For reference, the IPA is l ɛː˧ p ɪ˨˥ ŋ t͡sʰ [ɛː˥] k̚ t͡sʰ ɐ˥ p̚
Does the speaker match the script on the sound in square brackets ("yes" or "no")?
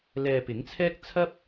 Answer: yes